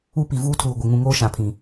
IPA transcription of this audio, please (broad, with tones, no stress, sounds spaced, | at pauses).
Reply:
u˦ p i˨ v uː˦ tʰ uː˨ ɡʷ ɪ˨ ŋ ũ˨ ŋ oː˦ ʃ ã˨ pʰ ĩ˨